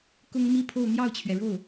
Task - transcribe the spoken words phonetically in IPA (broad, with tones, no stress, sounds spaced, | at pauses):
k ʊ˥ ŋ m i˥˧ pʰ o˥˧ ʊ̯ n̪ j ɑ˥˩ ʊ̯ t͡ɕʰ ɥ ɛ˩ ɻ o˥˩ ʊ̯